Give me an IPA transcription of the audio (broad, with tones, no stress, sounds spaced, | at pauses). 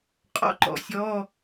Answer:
qʼ ɔ̰˧ ǃ ɔ̰˩ sʲ ɔ˧˥˧